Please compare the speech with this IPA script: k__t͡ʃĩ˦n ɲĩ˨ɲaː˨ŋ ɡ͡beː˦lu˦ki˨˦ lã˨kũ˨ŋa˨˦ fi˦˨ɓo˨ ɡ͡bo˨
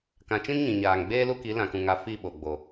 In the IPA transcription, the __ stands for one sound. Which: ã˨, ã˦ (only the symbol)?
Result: ã˨